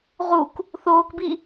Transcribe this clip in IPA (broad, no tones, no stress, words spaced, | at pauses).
ʁuk | θoːkbi